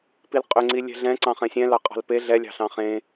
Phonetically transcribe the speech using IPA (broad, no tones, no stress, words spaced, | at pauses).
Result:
pilqʼʏŋ͡ǀi lʲɛ̤ɮɛ̃ ǀɑ̃χɛ̃sʲɛ̃ lɑqʼɑ̤lpe ɮɛlʲɑ̤ɬɑ̃ χẽ